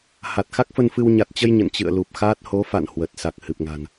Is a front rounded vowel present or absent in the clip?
absent